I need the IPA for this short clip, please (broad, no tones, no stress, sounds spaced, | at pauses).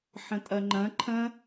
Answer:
ħ ə̃ tʼ ɐ ŋ͡ǃ ɐ̃ ǃʰ ɐ̃